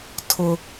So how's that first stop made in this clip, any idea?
aspirated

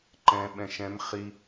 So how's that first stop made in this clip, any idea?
click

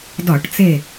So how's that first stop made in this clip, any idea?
plain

